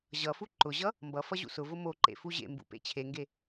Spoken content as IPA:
ʑ ʌ f u ǃ ʊ ʑ ʌ | m b ʌ f ʌ ʑ ṵ s ʊ v ʊ m o ǃ ḛ f u ʑ ḛ m b ṵ p ḛ t͡ɕʰ e ŋ ɡ e

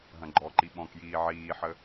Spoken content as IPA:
ɦ ɐ̃ ɡ͡ǃ ɔ ǃ i ɓ ɔ̃ k j iː ʕ iː ħ ə

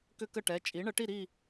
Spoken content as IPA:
k ʏ˥ k ə˥˨ ʈ ɛ˩˧˩ t͡ʃʼ i˩˥ ɳ ə˩˥ ʈ i˥˨ ɾ i˥˨

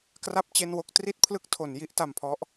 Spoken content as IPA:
k r a˥˩ p̚ t͡ɕ e˥˩ n w o˥˩ k̚ t r i˥˩ t̚ pʰ l ɯ˦˥ k̚ tʰ o˩˦ n j i˦˥ ʔ t a˧ m pʰ ɔ˦˥ ʔ

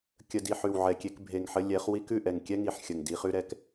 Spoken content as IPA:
kʲ ə˨ d i˨ ħ ʉ˨ w ʕ ɛ˨ kʲ e˧ k bʱ e˨ ŋ ħ ə˧ lʲ ɛ˨˦ χ w i˦ k ʉ˦˨ ʔ ɛ˨ ŋ kʲ ɛ˦ ŋ i˨ ħ xʲ ə˨ ŋ d i˧ χ ʉ˦ ɾ ɛ˧ k

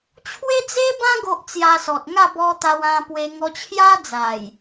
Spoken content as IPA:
t͡ɕʰ w e˦ d͡z e˦ b ã˦ ɡ o˦ ʔ t͡s j a˧ s ɔ˨ t̚ ŋ a˥˧ b ɔ˧ t̪ a˧ w ã˧ p w e˧ ŋ ɔ˧ t͡ɕʰ j a˦ d͡z a˨˩ j

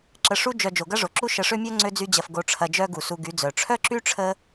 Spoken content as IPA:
ǁ ə˧ ʂ u˦ d͡ʒ œ˧ d͡ʒ o˨ ɡ ɐ˦ ʐ o˨ ǁ u˦ ʃ ə˧ ʂ ø˦ mʲ œ˦ ŋ͡ǀ ø˦ d͡z y˦ d͡ʑ ɐ˧ f ɡ o˨ ʈ͡ʂʰ ɐ˨ d͡ʒ œ˧ ɡ u˨ s u˧ ɡ y˨˦ d͡z œ˨ ʈ͡ʂʰ œ˦ ǁ y˦ ʈ͡ʂʰ ə˦

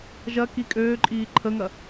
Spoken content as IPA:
ʒ ɐ k i kʼ øː ǃʼ iː ǃʰ ə ŋ ɐ

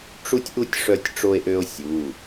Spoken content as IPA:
ʈ͡ʂ u˥ tʲ ʔ u˥ tʲ ʂ œ˥ tʲ ʈ͡ʂ o˥ e̯ ʔ ø˥ o̯ sʲ u˩˧˩

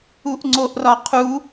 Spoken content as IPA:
u ʔ ŋ͡ǀ o ʔ r ɒ qʰ u

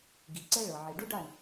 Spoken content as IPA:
ɡ i˨˦ ǀ ɛ˦ ɭ ɤ˨ ʕ i˨ ɖ u˦ ɖ a˦˨ ɳ

